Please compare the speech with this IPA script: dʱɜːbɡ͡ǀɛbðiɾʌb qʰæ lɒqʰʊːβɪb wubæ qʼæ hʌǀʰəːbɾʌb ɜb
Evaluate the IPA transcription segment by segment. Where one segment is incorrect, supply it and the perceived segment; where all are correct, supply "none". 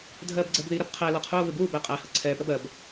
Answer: əː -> ɛː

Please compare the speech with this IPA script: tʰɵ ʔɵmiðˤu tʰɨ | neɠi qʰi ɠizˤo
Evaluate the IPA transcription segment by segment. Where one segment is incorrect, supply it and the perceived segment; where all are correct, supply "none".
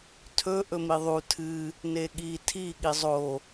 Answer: qʰ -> tʰ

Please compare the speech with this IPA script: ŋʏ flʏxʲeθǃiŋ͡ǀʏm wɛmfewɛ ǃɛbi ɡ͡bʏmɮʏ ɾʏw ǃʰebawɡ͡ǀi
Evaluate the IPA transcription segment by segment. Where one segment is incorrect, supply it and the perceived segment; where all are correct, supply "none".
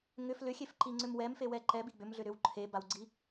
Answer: θ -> f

